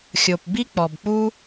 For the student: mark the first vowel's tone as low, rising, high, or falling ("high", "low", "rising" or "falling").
low